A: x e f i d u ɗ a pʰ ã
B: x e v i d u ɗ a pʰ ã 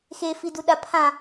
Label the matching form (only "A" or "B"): A